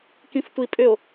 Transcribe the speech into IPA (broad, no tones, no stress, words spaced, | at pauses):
kĩftʷi pʼʏo̯